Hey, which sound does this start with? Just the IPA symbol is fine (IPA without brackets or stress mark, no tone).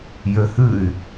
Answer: j